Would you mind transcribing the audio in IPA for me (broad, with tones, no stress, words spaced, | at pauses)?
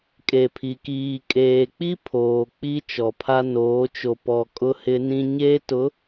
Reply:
kʼe˨pʰi˨kiː˨ kʼeː˨k͡pi˦pʰoː˨ k͡pi˦ t͡ʃɔ˨pʰa˦ noː˨˦ t͡ʃo˨pɔ˨ kʼʊ˦hɪ˦nĩ˦ ɲeː˦tʊ˨˦